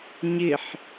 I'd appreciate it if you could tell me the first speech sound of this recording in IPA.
ɲ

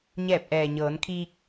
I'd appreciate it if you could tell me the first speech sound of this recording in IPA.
ɲ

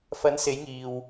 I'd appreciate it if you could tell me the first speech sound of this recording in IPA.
f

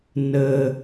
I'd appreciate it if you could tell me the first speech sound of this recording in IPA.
n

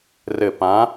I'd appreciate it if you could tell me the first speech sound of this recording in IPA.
r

